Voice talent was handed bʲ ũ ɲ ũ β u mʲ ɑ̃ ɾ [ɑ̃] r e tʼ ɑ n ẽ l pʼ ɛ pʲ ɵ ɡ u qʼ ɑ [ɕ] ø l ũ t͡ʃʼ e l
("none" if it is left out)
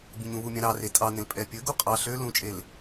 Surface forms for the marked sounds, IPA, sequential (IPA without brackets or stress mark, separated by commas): ɑ, ɬ